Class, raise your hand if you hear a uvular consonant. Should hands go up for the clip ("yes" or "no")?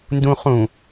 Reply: yes